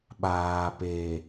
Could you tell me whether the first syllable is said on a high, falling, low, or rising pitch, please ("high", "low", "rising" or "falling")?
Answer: low